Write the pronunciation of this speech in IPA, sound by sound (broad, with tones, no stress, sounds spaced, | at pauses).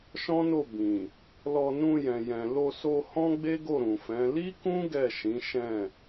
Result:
ʃ ɔ̃˦ n o˦˨ b ĩ˨ | l ɔ˧ n ũ˧ j ɛ̃˨ j ɛ̃˨ l o˧ s o˧ h ɔ̃˦ ɡ͡b e˦ ɡ o˦˨ ɾ ũ˨ f ɛ̃˨˦ l i˦ k ũ˦ ɡ ɛ˦˨ ʃ ĩ˨˦ ʃ ɛ̃˦˨